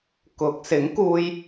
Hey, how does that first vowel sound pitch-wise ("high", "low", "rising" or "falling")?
rising